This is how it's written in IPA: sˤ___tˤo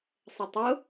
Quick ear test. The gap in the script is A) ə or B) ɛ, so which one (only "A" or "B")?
A